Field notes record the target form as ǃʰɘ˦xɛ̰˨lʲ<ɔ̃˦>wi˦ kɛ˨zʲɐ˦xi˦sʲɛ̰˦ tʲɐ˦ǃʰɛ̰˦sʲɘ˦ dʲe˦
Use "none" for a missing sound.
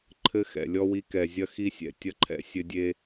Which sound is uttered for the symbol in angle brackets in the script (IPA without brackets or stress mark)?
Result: ɔ˦